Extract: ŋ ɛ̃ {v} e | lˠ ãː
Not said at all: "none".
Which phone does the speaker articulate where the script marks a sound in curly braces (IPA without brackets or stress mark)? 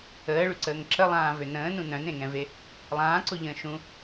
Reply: v